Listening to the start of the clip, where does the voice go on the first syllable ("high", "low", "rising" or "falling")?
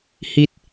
high